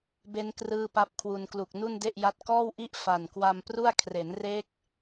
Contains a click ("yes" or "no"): no